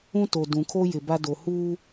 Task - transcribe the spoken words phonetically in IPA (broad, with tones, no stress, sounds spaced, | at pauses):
ũ˦ t o˨ d ũ˨ kʰ o˦ j ɪ˨ b a˦ d o˨ h uː˦